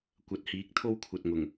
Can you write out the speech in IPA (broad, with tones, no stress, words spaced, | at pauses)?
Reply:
kʷɐ˨t̚hiː˨˥k̚ t̪ʰo˥wkʷʰɐ˨t̚ŋʊ˨˩ŋ